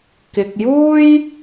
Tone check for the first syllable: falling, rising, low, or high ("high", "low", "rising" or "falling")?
low